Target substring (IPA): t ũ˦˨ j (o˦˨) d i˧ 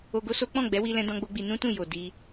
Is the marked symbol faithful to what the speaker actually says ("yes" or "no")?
no